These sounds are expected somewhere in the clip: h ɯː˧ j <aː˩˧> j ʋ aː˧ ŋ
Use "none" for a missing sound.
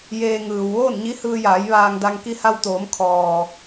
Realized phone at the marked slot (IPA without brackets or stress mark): aː˩˧